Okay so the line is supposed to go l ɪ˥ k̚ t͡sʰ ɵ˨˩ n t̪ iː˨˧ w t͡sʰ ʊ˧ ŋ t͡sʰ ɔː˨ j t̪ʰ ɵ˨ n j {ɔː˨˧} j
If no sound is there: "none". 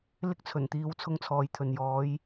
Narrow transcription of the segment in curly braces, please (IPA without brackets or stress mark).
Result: ɔː˨˧